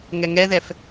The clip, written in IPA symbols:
ŋɛŋɛðɛf

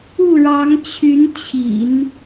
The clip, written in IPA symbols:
u˥˩ɻɑ˧˥ŋt͡ɕʰy˧˥nt͡ɕʰḭ˨˩˦n

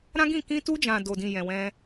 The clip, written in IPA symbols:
ɾã˦ɡĩ˦˨ kĩ˧tu˧d͡ʒã˨ do˨dĩ˨ jɛ̃˨wɛ̃˧

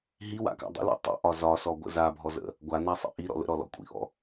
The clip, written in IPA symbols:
ɦiwa̰ka̰ dˤə̰lɔ̰ tˤə̰ʔɒ zɒsɔɡʷə̰ zabʱɔzə̰ | ɡʷanasˤə̰ ʔiɾɔ̰ lə̰ɾɔlɔ̰ kʷʼḭʔɔ̰

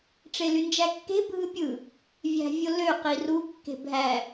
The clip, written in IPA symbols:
ʈ͡ʂelynd͡ʒækːe̤ bʱɯpʲɯ | vʲæ̤vʲolø qiru kːe̤bʱæ

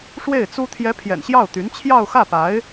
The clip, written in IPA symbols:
ʂwe˥˩ɪ̯t͡su˥ t̪ʰjɛ˧˥ pʰjɛ̰˨˩nɕjɑ˥˩ʊ̯t̪y˧˥n t͡ɕʰjɑ˥˧ʊ̯xä˥˩pa˧˥ɪ̯

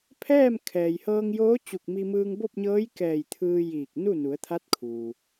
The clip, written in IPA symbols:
pʰɛː˥˨m kʰɛː˩jhɤː˧ŋjoː˧˥ t͡ɕu˧˩k̚mi˧mɯː˧ŋ bo˥˨p̚ɲɤː˧˥j kɛː˧˩j t̪ʰɯː˧jiː˧˩k̚nu˥˨ nu˩˧ə̯t̪ʰa˧˥t̚kʰuː˩

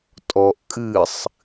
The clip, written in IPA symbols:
tʼɔʔ kʼɨsˤ

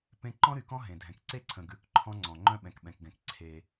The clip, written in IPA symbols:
pẽ˦ ǃɔ̃˦ɾy˨kɔ̃˦ ɦẽ˨dʱɛ̃˨k ǀe˦ǀʰə̃˨ ɡʉ˦k ǃʰɔ̃˦ŋ͡ǀɔ̃˨ ŋ͡ǃœ̃˦ɓɛ̃˨kɓɛ̃˨kɡɛ̃˨k ǀʰe˦

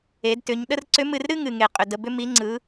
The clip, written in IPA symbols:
e˩˧dtʏ˩˧ɲ ɗə˥r ǀʏ˧˥mɨ˧rɾɨ˥ ŋɨ˩ŋe˩qʼʏ˩ də˩bʏ˧mi˩˧ ŋ͡ǀɯ˩˧

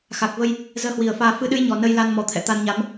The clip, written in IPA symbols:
xa˨˩k̚və˧j | zəː˧hwi˨˩ə̯faː˧ fɨ˨˦ɗɨ˨˦j ɲɔ˨˩nə˧jla˧n mɔ˨˦t̪ʰɛ̰˧˨ t̪a˧nɲa˨˦m

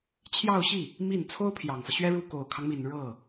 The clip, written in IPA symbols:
t͡ɕʰjɑ˥˧ʊ̯ɕi˥˩ | mi˥˩n t͡sʰo˥ʊ̯ pʰjɑ˨˩ŋfɤ˦ ɕɥɛ˥ ɻu˥˩ ko˨˩ʊ̯kʰɑ˦ŋmi˨˩n ɻɤ˥˩

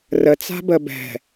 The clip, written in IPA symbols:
rət͡sa̤ bəbɛ̤

